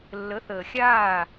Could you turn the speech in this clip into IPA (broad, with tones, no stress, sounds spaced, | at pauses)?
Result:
lː ə˨˦ θ əː˨ xʲ aː˦˨